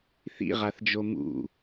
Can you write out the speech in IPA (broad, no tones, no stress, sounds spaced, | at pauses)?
θ ḭ ʁ a θ d͡ʒ o m ṵ